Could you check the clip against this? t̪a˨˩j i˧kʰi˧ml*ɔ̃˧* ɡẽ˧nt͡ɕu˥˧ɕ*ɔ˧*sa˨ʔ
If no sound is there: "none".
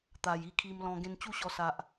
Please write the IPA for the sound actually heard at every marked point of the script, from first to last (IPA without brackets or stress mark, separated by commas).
ɔ̃˧, ɔ˧